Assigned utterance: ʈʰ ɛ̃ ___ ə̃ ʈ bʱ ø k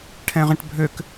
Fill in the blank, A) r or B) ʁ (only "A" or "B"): B